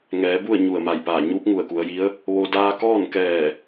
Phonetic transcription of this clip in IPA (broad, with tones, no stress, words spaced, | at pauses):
ŋɛː˩˧bu˥˨ə̯ ɲu˧˩ə̯ma˧˩jpaː˧˩ ɲuː˧˥p̚ŋu˧˩ə̯ku˩˧ə̯ji˧˥ə̯ | ʋo˧ daː˧kɔː˥˨nkɛː˧˩